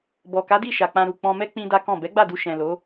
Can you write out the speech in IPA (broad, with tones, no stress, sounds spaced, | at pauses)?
b ɔ˨ k a˨˦ d i˦˨ ʃ a˨ k͡p ã˧ ɾ u˨ k͡p ɔ̃˧ m ɛ˦ k͡p ĩ˦ d a˦ k ɔ̃˦˨ b ɛ˨˦ ɡ͡b a˦˨ d u˧ ʃ ɛ̃˨ l o˨˦